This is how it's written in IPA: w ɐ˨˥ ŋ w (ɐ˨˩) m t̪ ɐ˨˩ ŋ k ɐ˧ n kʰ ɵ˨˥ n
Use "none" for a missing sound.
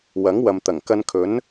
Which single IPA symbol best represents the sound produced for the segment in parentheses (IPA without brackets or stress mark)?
ɐ˨